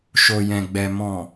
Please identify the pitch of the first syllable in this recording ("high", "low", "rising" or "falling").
low